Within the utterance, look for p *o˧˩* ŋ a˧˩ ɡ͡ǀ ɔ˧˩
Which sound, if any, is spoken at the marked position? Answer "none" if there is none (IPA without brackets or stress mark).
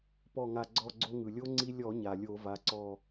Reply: ɔ˧˩